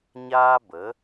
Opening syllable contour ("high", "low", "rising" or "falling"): high